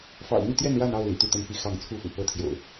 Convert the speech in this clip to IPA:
f ɑ̰˨˩ ʊ̯ n̪ i˥˨ t̪ j ɛ˥˨ n ɻ a˥˨ n ɑ˥˨ ʊ̯ l ḭ˨˩ t̪ u˥˨ t̪ ə˥˨ n p i˦ x ɑ˥˨ ŋ t͡sʰ u˥˨ f ṵ˨˩ p ɤ˦ t̪ʰ j o̰˨˩ ʊ̯

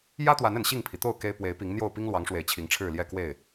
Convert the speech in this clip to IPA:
j ä˦ t̪ w a˨˦ n ə˨˩ n ɕ i˥˨ ŋ pʰ i˩ t̪ o˥˨ ʊ̯ k e˦ ɪ̯ p w e˨˦ ɪ̯ p i˨˦ ŋ n̪ j o˥˨ ʊ̯ p i˦ ŋ l w ɑ˨˦ ŋ ʂ w e˨˩ ɪ̯ t͡ɕʰ i˨˦ ŋ ʈ͡ʂʰ ɻ̩˥˨ l j ɛ˥˨ k w e˥˨ ɪ̯

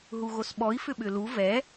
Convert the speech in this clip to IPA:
ɦ u ɣ o s ɓ ɔ i̯ f ʏ ɓ ʏ l u v ɛ

